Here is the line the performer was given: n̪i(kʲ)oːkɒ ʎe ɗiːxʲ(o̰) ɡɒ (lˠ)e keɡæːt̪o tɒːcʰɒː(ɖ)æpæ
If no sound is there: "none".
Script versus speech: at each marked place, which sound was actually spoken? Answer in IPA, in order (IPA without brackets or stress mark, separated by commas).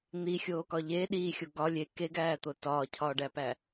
xʲ, o, lʲ, ɖ